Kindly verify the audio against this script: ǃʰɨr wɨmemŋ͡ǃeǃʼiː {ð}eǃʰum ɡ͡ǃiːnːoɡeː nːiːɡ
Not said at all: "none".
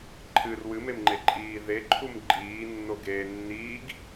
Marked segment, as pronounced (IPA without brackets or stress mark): ð